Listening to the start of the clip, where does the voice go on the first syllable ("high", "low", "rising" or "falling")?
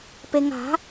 low